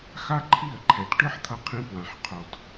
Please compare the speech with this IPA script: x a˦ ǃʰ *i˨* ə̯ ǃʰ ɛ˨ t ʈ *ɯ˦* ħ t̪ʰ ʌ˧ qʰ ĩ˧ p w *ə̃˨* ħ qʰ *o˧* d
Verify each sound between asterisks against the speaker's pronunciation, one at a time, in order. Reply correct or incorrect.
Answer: incorrect: i˦˨, correct, incorrect: ã˨, incorrect: o˨

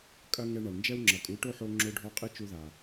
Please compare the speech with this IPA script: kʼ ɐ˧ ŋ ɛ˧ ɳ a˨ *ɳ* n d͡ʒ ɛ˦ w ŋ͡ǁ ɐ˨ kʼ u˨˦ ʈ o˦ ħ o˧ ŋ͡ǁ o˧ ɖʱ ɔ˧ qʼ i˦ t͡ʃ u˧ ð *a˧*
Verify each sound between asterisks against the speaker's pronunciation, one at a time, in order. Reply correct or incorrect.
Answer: correct, incorrect: a˨

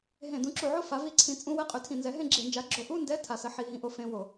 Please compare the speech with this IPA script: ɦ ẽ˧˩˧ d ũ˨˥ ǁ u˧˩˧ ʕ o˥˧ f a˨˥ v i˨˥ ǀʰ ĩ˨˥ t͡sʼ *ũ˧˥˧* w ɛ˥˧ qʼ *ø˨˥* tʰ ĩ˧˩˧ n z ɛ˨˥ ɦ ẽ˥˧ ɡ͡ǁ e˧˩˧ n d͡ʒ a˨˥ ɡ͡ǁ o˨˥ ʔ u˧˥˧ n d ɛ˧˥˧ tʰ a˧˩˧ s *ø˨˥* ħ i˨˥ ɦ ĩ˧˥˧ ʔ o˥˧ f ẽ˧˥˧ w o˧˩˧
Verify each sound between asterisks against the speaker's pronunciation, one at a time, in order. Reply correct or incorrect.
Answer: correct, correct, incorrect: ə˨˥

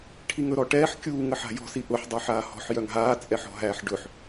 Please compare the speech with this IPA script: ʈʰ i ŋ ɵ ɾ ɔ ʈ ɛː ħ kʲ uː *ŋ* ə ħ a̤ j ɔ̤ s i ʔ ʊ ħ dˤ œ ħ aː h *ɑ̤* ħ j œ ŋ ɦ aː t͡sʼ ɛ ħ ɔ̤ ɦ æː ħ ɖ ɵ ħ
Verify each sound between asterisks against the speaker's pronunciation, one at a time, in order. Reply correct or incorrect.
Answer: correct, incorrect: ɔ̤

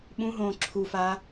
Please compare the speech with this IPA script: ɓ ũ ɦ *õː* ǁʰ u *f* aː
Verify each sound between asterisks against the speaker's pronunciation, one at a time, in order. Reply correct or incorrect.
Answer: correct, correct

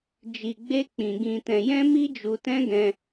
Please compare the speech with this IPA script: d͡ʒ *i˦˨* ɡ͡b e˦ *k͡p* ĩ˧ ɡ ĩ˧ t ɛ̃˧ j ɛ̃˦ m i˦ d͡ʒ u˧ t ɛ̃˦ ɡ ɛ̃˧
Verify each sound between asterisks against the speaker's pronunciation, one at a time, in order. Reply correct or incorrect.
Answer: incorrect: i˧, correct

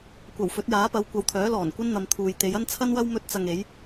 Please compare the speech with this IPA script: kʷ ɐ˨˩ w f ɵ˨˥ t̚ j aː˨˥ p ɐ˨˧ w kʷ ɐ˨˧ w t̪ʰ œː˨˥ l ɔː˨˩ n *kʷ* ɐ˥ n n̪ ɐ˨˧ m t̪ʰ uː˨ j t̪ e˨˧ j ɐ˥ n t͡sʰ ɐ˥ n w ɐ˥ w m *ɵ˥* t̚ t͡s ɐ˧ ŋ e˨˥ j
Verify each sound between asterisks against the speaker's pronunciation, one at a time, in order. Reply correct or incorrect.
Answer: correct, correct

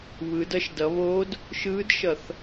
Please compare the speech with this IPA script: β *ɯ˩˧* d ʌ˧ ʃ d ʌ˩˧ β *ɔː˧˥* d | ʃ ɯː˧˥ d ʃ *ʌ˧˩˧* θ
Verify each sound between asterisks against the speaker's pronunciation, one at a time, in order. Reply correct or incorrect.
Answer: correct, incorrect: oː˧˥, correct

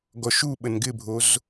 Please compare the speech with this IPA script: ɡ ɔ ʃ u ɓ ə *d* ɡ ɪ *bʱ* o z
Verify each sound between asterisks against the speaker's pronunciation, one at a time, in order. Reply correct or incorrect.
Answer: incorrect: n, correct

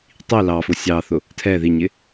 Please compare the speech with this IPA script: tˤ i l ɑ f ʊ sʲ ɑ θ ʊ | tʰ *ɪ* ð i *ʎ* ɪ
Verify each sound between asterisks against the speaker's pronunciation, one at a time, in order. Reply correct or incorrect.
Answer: incorrect: ɛ, incorrect: ɲ

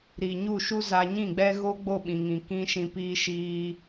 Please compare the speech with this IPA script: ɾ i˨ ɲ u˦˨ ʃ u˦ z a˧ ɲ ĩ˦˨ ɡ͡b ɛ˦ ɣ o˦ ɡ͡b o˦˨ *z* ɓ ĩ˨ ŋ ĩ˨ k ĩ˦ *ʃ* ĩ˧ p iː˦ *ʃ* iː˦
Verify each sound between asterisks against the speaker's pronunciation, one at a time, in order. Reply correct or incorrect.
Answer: incorrect: none, correct, correct

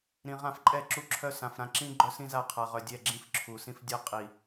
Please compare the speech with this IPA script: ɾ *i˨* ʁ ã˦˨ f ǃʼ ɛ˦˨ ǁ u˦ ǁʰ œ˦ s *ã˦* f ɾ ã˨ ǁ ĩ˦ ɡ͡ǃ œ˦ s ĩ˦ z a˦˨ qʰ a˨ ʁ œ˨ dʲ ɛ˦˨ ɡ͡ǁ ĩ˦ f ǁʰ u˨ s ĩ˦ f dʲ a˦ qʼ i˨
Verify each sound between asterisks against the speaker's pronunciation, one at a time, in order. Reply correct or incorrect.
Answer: incorrect: ĩ˨, incorrect: ã˨

